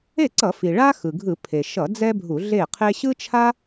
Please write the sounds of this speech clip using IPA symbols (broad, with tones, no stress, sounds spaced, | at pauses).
e˥˩ ǀ ʌ˧˩˧ f i˩ ɭ a˥ x ɯ˩ ɡʱ ɯ˧˩˧ pʰ e˩ ʃ ʌ˧˩˧ d͡z ɛ˥ bʱ u˧˩˧ ɮ e˥˩ qʰ e˥ ɕ ɯ˥ t͡ʃʰ a˥